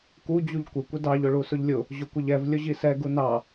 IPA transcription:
k u d͡ʑ u ʎ kʷ ɪ kʷ ɪ d ɑ ʎ ʊ ɭ u s ʊ ʎ lʲ ʊ | ʑ ʊ kʷ ɪ ʎ ɛ v lʲ ʊ ʑ i s ɛ ɡ u n ɑ

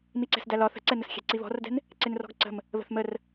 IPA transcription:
m i ǀ ɛ̤ s d æ l ɒ θ ə̤ ǀ ɛ n ə s xʲ ɛ̤ ǀ i β ɔ̤ r d ɛ̤ n | ǀ ɪ n r ɔ̤ ɡ ǀ ə̤ m | β ə̤ θ m ə r

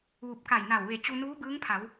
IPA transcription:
ʋ u˧˩ p̚ k a˧˩ j n a˧˩ w ʋ e˧˩ t͡ɕ u˧ n uː˧˥ b ɯː˧˥ ŋ pʰ a˩˧ w

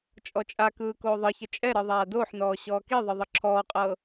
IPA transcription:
t͡ʃʼ ɔ t͡ʃʼ a k ɯː k oː ðˤ ɯ ç ə t͡ʃʼ ɛ ɾ ɯ ðˤ aː d oː ħ n ɔː ɕ ɔː k i ðˤ ɯ ðˤ ə ǁʰ ɔː qʼ ɤː

